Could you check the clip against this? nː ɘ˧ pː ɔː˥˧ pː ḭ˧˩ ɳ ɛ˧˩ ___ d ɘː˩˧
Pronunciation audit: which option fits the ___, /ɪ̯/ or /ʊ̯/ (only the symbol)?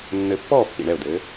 ʊ̯